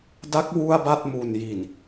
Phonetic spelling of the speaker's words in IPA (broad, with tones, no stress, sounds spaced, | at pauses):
d a˦˥ k̚ w u˥˩ a̯ b a˥˩ t̚ m u˨˩ n j i˨˩ n